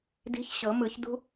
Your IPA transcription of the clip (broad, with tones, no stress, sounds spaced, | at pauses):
d i̤˧˥ ç ɕ ɤ˨˩˦ m ɯ˨˩˦ ç d ṳ˥